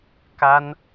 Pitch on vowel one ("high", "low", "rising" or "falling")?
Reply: high